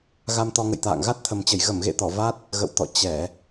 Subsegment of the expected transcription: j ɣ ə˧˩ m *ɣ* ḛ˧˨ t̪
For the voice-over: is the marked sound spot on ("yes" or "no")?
yes